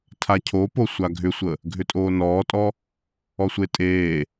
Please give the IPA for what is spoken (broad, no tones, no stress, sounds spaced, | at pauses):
tʰ a cʰ o p o sʷ a ɡʱ ʏ sʷ ə | ɡʱ ʏ tʼ oː n ɔː tʼ ɔ | ɔ sʷ e tʼ eː